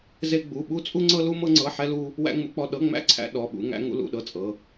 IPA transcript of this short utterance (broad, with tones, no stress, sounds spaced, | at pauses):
z e˥ ɡ͡b u˧˥˧ ɓ u˥ t͡sʼ u˥ ŋ͡ǀ ɤ˥ l u˥ m ɤ˥ ŋ͡ǀ ɤ˧˥˧ ħ ɛ˥ l u˥ | w æ̰˥ ŋ͡m ṵ˥ k͡p ɔ˧˥˧ ɗ ɤ˧˥˧ ŋ͡m æ̰˥ ǀʰ æ̰˥ ɗ ɔ˧˥˧ ɓ ṵ˥ ŋ æ̰˥ ŋ ṵ˥ l ṵ˧˥˧ ɗ ɤ˥ t͡sʼ ɤ˧˥˧